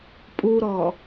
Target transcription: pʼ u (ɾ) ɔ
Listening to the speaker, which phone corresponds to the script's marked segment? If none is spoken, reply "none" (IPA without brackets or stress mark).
ɾ